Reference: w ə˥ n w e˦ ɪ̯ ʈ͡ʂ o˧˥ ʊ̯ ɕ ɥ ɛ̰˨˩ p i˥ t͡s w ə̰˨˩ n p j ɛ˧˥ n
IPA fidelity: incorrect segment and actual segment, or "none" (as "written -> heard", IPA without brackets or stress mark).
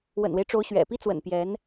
ə˥ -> ə̰˨˩